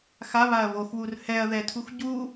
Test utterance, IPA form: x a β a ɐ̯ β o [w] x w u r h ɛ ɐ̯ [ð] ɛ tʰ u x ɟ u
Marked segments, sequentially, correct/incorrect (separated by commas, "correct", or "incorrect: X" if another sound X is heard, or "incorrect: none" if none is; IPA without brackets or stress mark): incorrect: none, correct